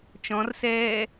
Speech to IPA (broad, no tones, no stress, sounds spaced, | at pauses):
t͡ʃ ɔ̃ r s ɛː